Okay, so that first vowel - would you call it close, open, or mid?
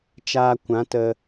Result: open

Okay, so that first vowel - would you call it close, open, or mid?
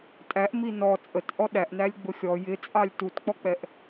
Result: open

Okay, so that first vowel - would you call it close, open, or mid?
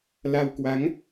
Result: open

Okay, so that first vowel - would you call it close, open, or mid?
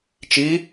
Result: close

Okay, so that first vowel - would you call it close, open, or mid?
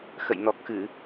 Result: mid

